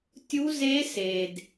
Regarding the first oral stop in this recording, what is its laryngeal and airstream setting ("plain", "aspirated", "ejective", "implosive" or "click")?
plain